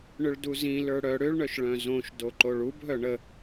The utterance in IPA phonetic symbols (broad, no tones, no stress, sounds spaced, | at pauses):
ɳ ʏ ɭ d u z ĩ l ə˞ ɽ œ ɽ ʏ ɭ ɳ œ ʃ ɭ œ̃ z õ ʃ d o ǃ o ɭ u b ɦ œ ɳ ə